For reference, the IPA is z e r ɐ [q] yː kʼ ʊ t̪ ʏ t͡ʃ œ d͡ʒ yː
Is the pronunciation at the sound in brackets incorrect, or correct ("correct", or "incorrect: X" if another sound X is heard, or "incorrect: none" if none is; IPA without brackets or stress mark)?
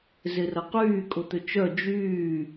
correct